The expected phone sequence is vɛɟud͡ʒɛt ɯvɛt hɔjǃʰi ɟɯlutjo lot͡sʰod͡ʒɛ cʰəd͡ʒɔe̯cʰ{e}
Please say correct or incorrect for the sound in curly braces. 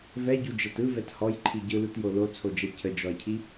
incorrect: i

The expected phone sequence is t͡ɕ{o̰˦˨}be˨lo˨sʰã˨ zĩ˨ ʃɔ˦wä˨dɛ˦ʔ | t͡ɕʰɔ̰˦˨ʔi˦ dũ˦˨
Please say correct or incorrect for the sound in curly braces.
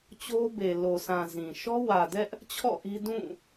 incorrect: o˦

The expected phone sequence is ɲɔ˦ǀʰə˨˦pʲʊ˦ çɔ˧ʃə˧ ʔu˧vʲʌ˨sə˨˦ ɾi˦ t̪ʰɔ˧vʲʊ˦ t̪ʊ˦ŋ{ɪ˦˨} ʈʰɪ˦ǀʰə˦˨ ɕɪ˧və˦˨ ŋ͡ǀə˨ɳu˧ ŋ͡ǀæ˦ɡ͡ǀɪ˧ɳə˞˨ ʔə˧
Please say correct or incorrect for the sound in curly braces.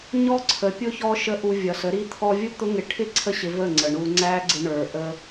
incorrect: ɪ˧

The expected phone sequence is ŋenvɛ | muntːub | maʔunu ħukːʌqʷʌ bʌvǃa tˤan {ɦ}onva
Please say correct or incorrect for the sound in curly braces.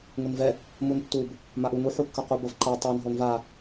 correct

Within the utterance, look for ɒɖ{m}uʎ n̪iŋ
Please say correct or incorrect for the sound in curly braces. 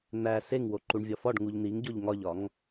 incorrect: ŋ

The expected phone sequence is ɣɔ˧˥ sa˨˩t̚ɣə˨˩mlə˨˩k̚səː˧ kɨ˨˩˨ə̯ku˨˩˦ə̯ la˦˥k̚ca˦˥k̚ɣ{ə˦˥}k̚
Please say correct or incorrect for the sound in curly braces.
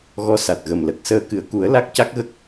correct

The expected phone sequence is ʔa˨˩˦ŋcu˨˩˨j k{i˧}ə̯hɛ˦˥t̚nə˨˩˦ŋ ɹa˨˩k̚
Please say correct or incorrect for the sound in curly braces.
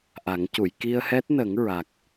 correct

